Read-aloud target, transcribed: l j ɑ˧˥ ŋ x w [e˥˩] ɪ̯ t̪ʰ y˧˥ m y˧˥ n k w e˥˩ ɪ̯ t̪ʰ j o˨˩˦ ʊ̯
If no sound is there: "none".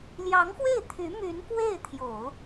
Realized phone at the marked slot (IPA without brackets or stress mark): e˥˩